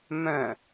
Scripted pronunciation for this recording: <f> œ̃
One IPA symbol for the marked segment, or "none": m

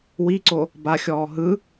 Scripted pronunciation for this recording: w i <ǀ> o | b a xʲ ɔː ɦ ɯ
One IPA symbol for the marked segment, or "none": ǀ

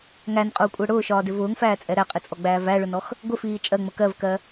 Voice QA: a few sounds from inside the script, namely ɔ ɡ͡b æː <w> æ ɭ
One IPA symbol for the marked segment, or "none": v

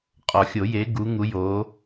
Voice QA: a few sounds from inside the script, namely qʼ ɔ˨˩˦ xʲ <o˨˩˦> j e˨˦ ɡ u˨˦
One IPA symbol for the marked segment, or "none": o˨˩˦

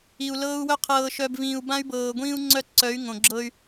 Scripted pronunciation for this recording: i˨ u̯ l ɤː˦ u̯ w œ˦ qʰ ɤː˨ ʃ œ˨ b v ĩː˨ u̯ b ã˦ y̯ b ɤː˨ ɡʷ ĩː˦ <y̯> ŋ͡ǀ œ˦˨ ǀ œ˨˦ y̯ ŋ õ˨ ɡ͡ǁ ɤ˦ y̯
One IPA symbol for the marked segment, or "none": u̯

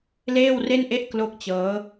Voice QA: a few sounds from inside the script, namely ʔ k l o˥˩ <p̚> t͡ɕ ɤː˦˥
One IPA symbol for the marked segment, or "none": k̚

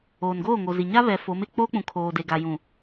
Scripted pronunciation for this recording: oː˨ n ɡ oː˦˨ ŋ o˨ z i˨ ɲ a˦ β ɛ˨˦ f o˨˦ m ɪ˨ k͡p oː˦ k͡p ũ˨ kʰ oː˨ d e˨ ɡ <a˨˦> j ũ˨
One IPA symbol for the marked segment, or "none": a˨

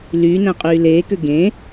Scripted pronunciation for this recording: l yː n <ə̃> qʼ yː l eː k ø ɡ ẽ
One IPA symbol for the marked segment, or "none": æ̃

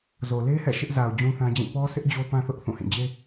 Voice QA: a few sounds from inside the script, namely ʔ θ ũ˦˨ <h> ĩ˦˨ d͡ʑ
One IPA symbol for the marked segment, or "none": h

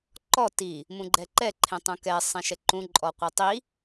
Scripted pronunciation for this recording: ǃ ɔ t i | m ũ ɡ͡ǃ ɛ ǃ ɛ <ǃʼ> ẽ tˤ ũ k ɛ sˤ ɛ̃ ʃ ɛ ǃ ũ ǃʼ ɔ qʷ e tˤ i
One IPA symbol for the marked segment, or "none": ǃʰ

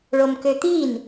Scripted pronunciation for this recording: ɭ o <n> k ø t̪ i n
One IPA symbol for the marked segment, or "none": m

